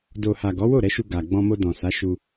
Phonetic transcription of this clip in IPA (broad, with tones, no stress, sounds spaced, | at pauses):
d o˨ h a˨ ɡ ɔ˨˦ w o˦˨ ɾ ɛ˨˦ ʃ u˧ ɡ a˨ ɡ͡b ɔ̃˧ m o˧ d ɔ̃˨ s a˨˦ ʃ u˧